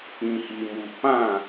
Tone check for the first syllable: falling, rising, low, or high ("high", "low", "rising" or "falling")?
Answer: low